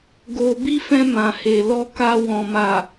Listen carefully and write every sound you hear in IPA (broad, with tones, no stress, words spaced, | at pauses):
ɡo˧ bi˦fɛ̃˧ mã˨he˨lɔ˧ka˧ wɔ̃˨ma˨